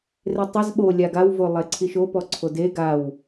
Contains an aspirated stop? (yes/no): yes